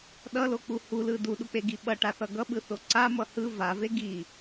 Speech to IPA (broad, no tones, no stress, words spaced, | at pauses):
ɗʌlok͡pu hulɯ duɗuk͡peɡi ɓʌʈaθʌ ɡʌɓɯθo ǀamʌ hɯ vave ɡi